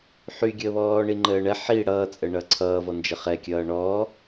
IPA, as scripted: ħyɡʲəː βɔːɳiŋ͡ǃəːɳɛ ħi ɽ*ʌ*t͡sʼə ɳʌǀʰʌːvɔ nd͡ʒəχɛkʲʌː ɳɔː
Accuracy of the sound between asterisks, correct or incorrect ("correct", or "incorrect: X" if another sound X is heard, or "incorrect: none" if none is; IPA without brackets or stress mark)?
incorrect: ʌː